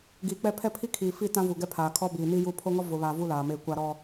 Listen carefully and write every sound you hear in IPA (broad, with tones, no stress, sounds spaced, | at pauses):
ɡ iː˨ k͡p ɛ˦ pʰ ɛ˦ pʰ i˦ kʰ iː˨ f i˦˨ t ã˦ v u˨ ɡ ɛ˦ pʰ aː˨ kʰ ɔ˦ b iː˨ n i˦ j u˦˨ pʰ o˦ ŋ ɔ˦ v ʊ˨ β aː˨ v u˦ l aː˨ m eː˦˨ kʷ a˦ ɾ ɔ˦